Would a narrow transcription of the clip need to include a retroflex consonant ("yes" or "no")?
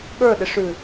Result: yes